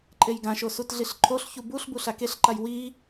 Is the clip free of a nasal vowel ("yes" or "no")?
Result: no